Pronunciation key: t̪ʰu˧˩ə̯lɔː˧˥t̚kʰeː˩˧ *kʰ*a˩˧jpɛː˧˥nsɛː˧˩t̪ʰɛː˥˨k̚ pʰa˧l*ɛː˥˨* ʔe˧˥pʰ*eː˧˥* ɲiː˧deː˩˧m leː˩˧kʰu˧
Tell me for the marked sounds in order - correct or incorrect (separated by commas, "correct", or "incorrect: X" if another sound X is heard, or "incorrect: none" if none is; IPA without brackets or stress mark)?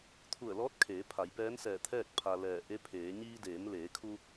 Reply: incorrect: pʰ, incorrect: ɛː˧˩, incorrect: eː˩˧